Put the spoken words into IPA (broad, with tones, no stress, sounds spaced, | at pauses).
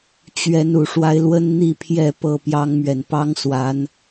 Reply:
t͡ɕ ɥ ɛ˨˦ n u˨˩ ʂ w a˦ ɪ̯ l w ə˦ n n̪ i˥˨ pʰ j ɛ˥˨ p ɤ˥˨ p j ɑ˦ ŋ m ɥ ɛ˨ n p ɑ˦ ŋ s w a˨˦ n